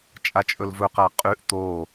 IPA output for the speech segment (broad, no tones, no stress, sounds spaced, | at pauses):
t͡ʃʼ a t͡ʃʼ ɵ l v ɵ q a qʼ ʉ ʔ t̪ o